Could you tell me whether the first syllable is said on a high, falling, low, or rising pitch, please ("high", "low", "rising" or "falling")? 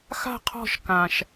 falling